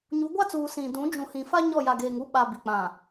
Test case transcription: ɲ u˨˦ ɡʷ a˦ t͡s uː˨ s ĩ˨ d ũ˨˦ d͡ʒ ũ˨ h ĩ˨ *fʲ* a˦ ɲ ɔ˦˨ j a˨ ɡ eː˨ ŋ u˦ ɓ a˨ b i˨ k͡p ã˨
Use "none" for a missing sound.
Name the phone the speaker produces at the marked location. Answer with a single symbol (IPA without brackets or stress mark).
f